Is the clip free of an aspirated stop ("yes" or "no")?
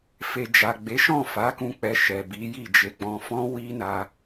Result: yes